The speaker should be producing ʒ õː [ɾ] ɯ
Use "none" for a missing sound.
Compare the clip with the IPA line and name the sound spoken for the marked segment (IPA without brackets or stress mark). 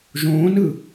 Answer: n